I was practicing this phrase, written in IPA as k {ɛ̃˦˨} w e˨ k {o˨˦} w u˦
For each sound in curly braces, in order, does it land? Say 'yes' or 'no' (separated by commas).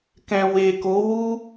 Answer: no, yes